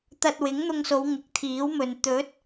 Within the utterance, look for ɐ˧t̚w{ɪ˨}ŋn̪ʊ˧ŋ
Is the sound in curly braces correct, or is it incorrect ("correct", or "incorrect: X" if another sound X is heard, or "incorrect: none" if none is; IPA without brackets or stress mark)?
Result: incorrect: ɪ˨˥